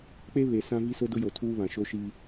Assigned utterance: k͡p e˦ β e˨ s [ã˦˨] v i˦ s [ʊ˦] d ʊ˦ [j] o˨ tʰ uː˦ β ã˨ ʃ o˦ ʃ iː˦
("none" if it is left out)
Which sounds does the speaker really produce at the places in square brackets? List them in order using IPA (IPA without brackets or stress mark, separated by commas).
ã˦, ʊ˦, j